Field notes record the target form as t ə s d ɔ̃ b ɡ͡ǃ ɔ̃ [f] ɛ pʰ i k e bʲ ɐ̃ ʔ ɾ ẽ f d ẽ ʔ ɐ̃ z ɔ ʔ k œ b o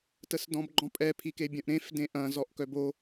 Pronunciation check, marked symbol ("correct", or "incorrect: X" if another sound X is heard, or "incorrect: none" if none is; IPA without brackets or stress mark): incorrect: pʼ